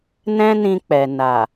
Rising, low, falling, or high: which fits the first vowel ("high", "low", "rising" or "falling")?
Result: high